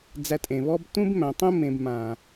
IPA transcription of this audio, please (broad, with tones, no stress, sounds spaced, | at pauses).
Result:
d͡z æ˧ tʼ ẽ˨ β ɔ˦ b t ũ˦ b m æ̃˨ tˤ ũ˦ m ẽ˨ b m ã˨